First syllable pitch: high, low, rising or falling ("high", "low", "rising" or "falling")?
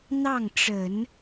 falling